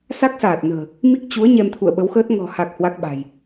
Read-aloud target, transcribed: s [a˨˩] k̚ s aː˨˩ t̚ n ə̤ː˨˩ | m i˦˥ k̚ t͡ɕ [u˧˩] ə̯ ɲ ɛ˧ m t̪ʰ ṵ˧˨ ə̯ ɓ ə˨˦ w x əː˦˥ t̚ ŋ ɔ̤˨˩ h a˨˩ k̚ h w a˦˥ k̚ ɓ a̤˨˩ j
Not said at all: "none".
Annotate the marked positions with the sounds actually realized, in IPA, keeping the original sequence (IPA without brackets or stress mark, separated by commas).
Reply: a˦˥, u˨˦